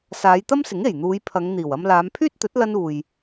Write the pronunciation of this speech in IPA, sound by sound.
saː˨˧jt̪ɐ˥msɪ˨˥ŋ e˨˩jn̪uː˨˧j pʰɐ˨˧ŋ n̪iː˨˩wɐ˧m laː˨˧mpʰyː˥t̚t̪ɵ˨˥t̚ lɐ˥nuː˨j

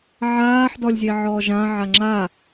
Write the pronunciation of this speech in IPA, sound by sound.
ʕaːħ dɔlʲzʲeʕɔːʒã ʕaŋ͡ǁa

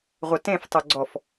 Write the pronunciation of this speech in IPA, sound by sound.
ʁʷœtẽf tˤɵɡ͡ǀɔf

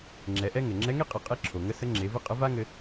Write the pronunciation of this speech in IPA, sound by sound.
ŋ͡ǁɛ˩˧ʔɛ˥ŋɘ˩ ŋ͡ǁɛ˧˥ŋe˥qʼɘ˩˧qʼe˧˥ ǁʰo˩ŋə˧˥ sə˧˥ŋ͡ǁe˩˧vɘ˥qʼə˧˥ va˥ŋɘ˧

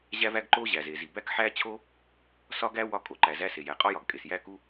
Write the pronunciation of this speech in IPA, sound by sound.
ʑæ˥væ˥ɡǃo˥ ʑæ˩ze˩zi˩ bæ˥kħæ˥t͡ɕʰo˥ | sɒ˥ɡæ˥ wɒ˥kʼo˩ǃæ˩zæ˥ se˩jæ˩qʼɒ˥jɒ˩ɡ kʼe˩sjæ˥ku˥

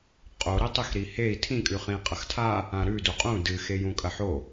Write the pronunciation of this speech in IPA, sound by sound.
qʼo ɾitˤixɾihei̯ tʰĩkʼʉχĩ qʼɐxtʰa | ãɾʉdu qʼũ dɨ xejũkʼɐħo

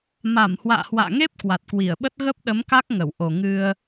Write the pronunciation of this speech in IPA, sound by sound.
ma˧˩mhwa̰ː˧˨hwa̰ː˧˨ŋe˦˥p̚ kwa˨˩t̚kwi˧˩ə̯ɓə˦˥t̚ ɣə˦˥p̚ɗə˨˦mka˦˥k̚ ŋə˧˩wʔo˨˩ ŋɨ˧ə̯

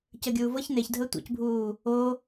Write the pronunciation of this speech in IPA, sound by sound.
cəɡʲuː vɤç neçdʱəː tʷḛcbʱuː | o

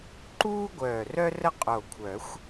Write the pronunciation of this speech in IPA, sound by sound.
ǃuː˥ɡʷœː˧˩rœ˥ rə˥qʼo˧˩kʷʰœ˨˩˦xʷ

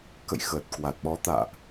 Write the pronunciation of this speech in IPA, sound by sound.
kə̰˧˨j xəː˨˩t̚kwa˨˩t̚ɓɔ˨˦t̪a̰ː˧˨ʔ

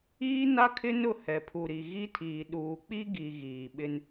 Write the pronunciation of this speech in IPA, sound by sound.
iː˦na˦kʰɪ˦nʊ˦˨ hɛ˨pʰu˨ɾi˨ ɣi˦tʰiː˨ ɗuː˨k͡pi˦ɡi˨ ɣiː˨ ɓɪ˦n

